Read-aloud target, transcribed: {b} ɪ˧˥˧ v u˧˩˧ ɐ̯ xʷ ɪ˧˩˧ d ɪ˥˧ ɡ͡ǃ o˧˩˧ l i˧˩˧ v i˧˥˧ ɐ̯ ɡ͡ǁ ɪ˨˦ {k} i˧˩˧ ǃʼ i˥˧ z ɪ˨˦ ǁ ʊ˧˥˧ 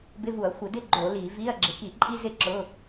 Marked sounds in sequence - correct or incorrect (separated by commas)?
correct, correct